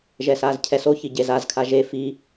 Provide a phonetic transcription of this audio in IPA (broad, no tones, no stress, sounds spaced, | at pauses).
ʒ ɛ s aː z cʰ ɛ s o ç i ɟ e z a z kʰ a ʒ e f i